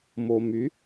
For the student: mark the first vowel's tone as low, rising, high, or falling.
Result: low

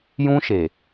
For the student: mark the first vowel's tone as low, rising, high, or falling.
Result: high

